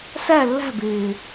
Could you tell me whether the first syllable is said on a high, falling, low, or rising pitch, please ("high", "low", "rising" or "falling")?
falling